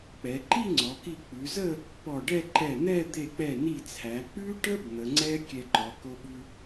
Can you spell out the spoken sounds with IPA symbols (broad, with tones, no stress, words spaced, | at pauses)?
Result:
k͡pɛ˩˧ǃi˥˧ŋ͡ǀɔ˩˧ki˧˩ k͡pʉ˩˧zə˥˧ | pɔ˧˩ɖɛ˥˧ ǃɛ˧˩n̪ɛ˥˧ d̪e˧˩k͡pɛ˧˩ni˧˩t͡sʰæ˩˧ k͡pʉ˥ʈə˥b n̪ə˩˧ŋ͡ǀɛ˥ kʲɛ˧ǃɔ˩˧ ko˧ɓʉ˧